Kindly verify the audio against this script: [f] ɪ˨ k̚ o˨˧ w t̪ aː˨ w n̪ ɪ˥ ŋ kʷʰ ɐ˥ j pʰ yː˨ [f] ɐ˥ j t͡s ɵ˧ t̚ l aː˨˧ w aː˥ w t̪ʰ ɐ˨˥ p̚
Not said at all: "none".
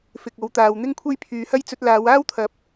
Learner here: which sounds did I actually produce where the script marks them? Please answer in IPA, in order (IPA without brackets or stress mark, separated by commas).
f, h